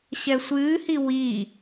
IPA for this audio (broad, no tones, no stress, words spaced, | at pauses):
ɕɛsʷɨːhi wiː